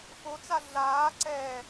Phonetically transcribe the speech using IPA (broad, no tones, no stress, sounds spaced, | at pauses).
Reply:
f o t͡s a ɮ aː ǀ ɛː